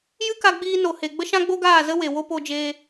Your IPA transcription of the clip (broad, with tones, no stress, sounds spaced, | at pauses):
j ɨ˦ k a˧ ɡ͡b iː˧ n o˨ h e˨ ɡ͡b ə˦ ʃ ã˦ ɡ͡b o˦ ɡ aː˦˨ z ə˦ w e˨ w o˦ p o˧ d͡ʒ eː˧